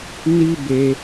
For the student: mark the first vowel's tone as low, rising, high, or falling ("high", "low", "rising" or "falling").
high